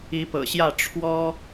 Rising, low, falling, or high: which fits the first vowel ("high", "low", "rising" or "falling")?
rising